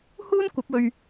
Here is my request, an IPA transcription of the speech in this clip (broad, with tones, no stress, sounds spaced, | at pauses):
h uː˥ n kʷ ɐ˨˥ p̚ ɵ˧ ɥ